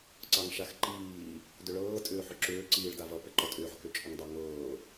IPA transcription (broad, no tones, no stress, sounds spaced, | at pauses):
ǀ ɑ ŋ ʃ a x ǃ iː | d ʏ ɭ ɤː tʼ ʏː ħ ʏ ǁ ʏː ǀ iː ɭ d a v ʌ p ɛ ǃ ɔ tʼ ʏː ħ k ʏ t͡ʃʼ ʏ ŋ dˤ ɑ ŋ ɤː